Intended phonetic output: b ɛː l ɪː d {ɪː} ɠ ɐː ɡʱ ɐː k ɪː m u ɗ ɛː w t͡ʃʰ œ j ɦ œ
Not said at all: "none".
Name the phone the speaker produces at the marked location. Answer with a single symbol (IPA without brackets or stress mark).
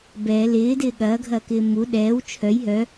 ɪː